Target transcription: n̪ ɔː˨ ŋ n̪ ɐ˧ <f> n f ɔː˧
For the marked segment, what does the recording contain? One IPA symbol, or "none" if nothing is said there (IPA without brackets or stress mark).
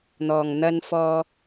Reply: none